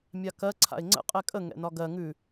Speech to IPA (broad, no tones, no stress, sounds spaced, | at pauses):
mʲ a k ɜ ǀʰ a̰ ɪ̯ ŋ͡ǀ ə̰ qʼ ɛ kʼ ə ŋ ɛ̰ n ɒ ɡ ɜ ŋ ʉ